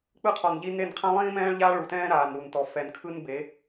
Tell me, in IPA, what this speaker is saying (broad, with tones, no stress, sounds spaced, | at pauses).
k͡p ɯ˦ qʰ ɔ˨ n ʎ i˦ n e˦˨ n qʰ ã˦ lˠ ĩː˦ m ɛ̃ː˦ ɭ ʎ aː˦ ɭ u˨ t ɛ̃ː˦ ɾ aː˨ n ɾ u˨ n t ɔ˨ f ɛ˨ n kʰ ɯ˦ n b e˨˦